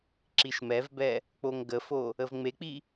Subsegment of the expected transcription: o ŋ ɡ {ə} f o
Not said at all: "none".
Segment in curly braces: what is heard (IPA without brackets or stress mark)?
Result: ə